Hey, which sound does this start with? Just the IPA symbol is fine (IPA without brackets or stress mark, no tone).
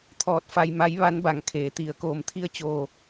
t̪ʰ